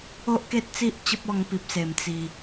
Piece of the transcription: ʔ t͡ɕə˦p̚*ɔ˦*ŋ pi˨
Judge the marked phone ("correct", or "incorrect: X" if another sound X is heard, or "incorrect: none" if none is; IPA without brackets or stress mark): incorrect: ɔ˧